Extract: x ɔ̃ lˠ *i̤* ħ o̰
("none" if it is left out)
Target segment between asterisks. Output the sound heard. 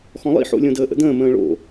ḭ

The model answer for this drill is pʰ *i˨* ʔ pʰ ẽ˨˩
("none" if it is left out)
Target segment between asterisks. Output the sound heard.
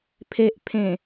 e˨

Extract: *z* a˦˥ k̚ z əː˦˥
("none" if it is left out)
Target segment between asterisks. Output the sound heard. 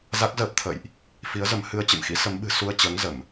z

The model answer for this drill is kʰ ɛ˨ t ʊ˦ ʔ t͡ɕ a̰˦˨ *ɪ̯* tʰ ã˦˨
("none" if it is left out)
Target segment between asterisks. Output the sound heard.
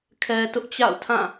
ʊ̯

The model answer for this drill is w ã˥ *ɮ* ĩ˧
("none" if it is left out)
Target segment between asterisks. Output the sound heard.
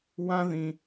ð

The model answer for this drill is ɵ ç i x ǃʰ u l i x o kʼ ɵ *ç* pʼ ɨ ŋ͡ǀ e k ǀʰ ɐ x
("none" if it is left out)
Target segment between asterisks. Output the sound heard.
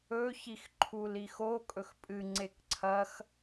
x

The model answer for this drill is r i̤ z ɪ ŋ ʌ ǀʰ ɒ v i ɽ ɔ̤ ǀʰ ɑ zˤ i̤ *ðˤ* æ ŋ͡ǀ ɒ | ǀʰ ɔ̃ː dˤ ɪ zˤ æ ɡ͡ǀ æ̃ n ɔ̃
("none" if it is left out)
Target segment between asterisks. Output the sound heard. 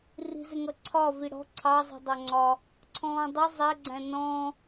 dˤ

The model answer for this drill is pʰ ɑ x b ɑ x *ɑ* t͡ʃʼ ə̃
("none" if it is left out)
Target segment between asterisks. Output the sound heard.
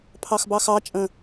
ɑ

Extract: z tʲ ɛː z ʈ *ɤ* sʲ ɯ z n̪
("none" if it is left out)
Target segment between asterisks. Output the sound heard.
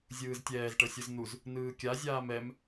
ɤ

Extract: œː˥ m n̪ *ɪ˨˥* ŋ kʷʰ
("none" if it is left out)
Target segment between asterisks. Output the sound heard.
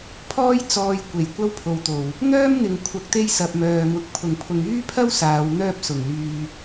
ɪ˨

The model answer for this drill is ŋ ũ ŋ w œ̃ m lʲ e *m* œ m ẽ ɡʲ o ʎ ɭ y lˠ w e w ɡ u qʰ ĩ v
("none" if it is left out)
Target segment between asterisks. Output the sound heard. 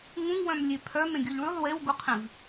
pʰ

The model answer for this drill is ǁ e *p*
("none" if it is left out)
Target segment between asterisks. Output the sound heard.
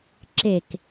k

